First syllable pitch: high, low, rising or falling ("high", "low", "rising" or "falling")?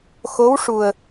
rising